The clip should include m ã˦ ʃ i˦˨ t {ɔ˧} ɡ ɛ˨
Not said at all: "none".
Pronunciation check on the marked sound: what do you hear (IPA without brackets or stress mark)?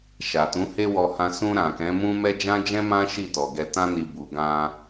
ɔ˨